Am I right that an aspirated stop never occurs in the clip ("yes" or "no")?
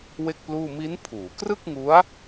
no